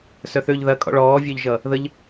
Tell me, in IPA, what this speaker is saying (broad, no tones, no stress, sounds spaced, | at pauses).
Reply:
s œ θ ø ʎ ð ɐ kʼ ɔ̰ ɭ ɔː vʲ œ ʎ ʒ ʌ | ð ə ʎ